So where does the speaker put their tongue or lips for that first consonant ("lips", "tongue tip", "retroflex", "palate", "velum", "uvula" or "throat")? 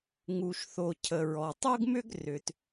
velum